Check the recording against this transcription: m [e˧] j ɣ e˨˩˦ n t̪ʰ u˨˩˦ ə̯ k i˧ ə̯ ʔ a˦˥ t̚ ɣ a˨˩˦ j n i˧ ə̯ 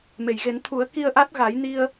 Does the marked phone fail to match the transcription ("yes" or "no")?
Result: yes